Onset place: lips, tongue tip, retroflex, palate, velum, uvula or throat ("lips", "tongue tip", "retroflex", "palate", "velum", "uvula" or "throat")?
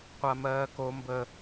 uvula